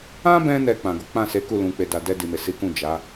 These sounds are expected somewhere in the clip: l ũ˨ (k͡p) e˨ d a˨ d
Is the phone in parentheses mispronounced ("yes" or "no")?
no